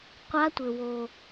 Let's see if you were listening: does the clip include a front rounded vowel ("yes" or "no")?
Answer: no